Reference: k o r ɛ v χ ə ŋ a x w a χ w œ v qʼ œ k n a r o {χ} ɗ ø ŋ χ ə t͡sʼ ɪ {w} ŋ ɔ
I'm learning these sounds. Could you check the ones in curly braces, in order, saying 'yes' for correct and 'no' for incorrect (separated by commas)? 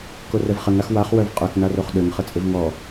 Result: yes, no